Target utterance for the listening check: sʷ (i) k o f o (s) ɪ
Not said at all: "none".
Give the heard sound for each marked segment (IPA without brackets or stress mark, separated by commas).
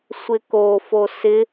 ɪ, s